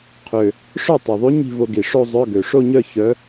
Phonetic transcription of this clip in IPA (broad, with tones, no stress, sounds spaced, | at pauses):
qʰ ø˨˩ | ʂ œ˥˩ tˤ u˨˩ ðˤ y˧˥ ɲ i̤˥˧ v o˧ ɡ i˨˩ ʂ o˥˧ zˤ œ˧˥˧ ɡ ø˨˩ ʂ o˥˧ ɲ œ˥˧ ç œ˧˥